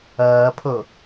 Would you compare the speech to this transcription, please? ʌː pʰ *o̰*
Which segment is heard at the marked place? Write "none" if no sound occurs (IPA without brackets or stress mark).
o